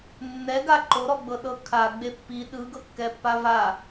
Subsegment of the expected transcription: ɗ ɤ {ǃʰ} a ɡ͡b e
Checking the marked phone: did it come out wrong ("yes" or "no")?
yes